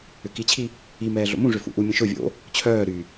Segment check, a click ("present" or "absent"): absent